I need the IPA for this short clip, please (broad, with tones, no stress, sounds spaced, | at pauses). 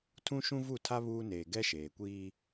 tʰ ũ˦ ʃ ũ˦ v u˦˨ tʰ a˦ β uː˦ n eː˨ ɡ ɛ˦ ʃ eː˨ kʷ iː˦